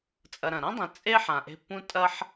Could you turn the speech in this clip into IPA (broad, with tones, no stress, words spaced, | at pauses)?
t͡sʼɐ˨ɾɐ̃˩ɾã˥dˤẽ˨ t͡sʼe˥ ħã˨ʔe̤˦pːũ˥ tʼɐ˥ħ